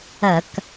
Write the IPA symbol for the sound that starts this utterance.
ɐ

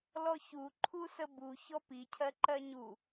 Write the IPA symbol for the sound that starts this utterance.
l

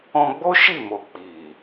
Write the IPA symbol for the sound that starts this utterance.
ɔ̃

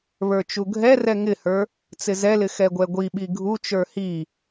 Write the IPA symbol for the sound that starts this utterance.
β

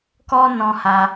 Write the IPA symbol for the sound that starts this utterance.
k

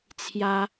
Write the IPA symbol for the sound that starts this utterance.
t͡sʰ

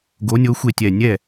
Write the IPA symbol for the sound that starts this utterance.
ɡ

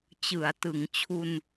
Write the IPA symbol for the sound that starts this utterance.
t͡ɕ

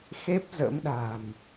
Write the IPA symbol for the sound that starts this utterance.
x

